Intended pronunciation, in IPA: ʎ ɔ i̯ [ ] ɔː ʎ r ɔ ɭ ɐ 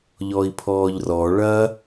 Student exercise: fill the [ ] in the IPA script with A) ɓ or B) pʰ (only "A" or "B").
B